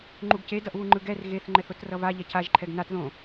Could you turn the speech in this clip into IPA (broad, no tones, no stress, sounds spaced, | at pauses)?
ŋ͡ǃ u ɡ c e d ʌ ʔ β u ŋ͡ǃ ɯ ɡ ɛ r ɣ e θ ŋ͡ǃ ɛ θ o t r ʌ v a ʎ ɛ cʰ a ʒ ǃʰ ɛ ɡ n a t ð õ